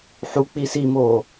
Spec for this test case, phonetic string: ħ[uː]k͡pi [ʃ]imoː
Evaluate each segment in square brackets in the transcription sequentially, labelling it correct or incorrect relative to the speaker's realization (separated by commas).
incorrect, incorrect